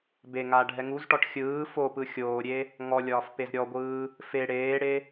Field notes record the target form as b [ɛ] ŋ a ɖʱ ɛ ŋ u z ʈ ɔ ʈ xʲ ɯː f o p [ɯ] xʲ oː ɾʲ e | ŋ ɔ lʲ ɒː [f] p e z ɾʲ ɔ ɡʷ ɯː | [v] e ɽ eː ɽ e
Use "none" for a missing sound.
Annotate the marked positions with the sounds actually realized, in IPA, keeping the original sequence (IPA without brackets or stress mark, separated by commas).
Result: e, ɯ, f, f